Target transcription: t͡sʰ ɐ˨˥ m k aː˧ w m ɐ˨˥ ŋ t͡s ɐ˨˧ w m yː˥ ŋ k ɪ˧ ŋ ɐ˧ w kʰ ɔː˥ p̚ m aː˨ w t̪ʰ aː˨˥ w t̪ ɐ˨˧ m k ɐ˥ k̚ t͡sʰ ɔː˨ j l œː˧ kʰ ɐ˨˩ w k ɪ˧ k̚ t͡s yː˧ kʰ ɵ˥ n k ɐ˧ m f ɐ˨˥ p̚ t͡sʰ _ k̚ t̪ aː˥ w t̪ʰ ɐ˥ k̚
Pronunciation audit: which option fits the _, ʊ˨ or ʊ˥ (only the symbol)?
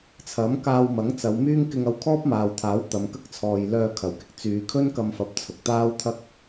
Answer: ʊ˨